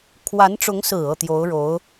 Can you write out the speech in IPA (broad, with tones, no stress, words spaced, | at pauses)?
kʰwa˧˥nʈ͡ʂʊ˧˥ŋsɹ̩˨˩ ɤ˥˩t̪jo˧˥ʊ̯ɻo˧˥ʊ̯